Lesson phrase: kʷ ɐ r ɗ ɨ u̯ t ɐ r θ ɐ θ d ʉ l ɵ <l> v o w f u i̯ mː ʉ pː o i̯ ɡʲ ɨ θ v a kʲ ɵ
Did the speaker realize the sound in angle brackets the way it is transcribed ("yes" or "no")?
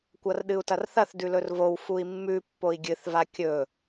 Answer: no